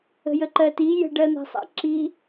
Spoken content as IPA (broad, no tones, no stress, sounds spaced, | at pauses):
ə̤ j ə ǃ ɜ t i j ə̤ ɖ ɜ n̪ a̤ sˤ a̰ ǁ i